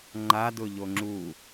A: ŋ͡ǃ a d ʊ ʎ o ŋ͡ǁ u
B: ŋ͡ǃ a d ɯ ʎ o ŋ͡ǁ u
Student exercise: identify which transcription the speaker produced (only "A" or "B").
A